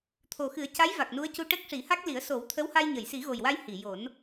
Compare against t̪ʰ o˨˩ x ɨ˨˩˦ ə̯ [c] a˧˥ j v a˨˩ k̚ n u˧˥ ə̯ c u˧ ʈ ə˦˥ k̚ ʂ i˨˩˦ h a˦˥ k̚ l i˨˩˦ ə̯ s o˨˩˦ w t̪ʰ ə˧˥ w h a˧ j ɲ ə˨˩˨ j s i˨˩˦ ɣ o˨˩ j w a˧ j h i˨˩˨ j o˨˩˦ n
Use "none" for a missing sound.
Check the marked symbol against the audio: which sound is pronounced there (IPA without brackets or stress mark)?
c